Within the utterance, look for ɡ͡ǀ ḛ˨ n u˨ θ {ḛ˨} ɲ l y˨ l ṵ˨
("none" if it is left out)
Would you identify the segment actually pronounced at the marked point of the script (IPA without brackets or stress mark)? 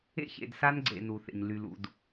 ḛ˨